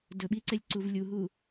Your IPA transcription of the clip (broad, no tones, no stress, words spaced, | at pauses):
dɵɓiǀelʲǀuv lʲuɦu